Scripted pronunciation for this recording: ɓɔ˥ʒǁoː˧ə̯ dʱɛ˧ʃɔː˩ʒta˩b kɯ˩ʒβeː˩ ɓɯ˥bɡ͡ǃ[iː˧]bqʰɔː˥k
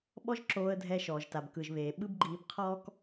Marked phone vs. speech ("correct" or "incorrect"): correct